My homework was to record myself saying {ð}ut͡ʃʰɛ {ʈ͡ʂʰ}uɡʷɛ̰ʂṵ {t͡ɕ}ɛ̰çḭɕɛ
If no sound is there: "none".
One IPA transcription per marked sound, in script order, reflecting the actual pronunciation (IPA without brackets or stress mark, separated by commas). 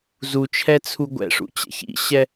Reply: z, t͡sʰ, t͡ɕ